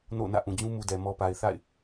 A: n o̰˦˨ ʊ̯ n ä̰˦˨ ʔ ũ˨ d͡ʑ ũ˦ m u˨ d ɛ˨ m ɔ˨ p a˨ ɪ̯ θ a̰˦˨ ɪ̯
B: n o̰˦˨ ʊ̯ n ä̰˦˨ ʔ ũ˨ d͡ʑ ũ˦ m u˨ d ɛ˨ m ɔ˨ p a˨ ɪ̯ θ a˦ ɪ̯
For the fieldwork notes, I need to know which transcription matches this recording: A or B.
A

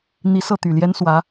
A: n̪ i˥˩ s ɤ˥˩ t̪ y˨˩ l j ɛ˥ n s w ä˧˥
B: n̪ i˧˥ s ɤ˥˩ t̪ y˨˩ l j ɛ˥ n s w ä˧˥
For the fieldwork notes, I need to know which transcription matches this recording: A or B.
B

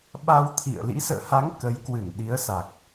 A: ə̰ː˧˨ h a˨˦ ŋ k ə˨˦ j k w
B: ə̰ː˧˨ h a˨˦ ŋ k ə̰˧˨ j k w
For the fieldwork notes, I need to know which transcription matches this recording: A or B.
A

